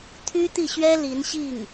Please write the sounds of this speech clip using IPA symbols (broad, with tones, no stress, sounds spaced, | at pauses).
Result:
t̪ʰ y˥ t̪ i˥˩ ɕ ɥ ɛ˥ l i˧˥ n ɕ i˥˩ ŋ